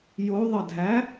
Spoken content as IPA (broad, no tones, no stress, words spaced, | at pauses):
joðˤədʱæ